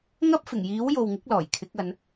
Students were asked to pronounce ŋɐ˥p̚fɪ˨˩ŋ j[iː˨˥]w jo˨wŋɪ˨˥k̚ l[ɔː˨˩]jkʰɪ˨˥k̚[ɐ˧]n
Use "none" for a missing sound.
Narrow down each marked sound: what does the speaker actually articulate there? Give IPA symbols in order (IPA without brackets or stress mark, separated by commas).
iː˨˥, ɔː˨˩, ɐ˨˧